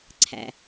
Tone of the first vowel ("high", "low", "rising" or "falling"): low